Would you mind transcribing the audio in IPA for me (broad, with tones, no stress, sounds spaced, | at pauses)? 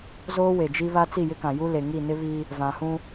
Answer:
z oː˦ w e˨ d͡ʒ i˦ β a˦ t͡s i˦˨ j ɪ˦ k ã˨ j u˦ l e˨ ŋ i˦˨ n ɪ˦ β i˦ | v ã˨ h ũ˦